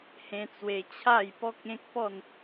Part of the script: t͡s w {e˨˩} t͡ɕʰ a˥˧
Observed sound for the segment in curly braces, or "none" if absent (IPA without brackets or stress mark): e˧